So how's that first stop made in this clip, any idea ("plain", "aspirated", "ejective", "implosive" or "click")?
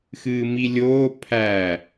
aspirated